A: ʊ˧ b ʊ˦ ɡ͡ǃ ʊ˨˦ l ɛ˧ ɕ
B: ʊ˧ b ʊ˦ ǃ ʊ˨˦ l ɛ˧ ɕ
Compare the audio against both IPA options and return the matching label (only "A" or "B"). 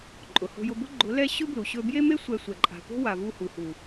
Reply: A